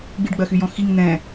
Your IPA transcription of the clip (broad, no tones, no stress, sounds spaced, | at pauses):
ɡ͡b i ɖ ɡ͡b ɜ x y j ɔ̃ x i ŋ n̪ ɛ̃